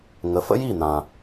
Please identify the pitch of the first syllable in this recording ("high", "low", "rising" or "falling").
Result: rising